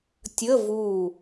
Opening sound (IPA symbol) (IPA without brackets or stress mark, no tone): tʲ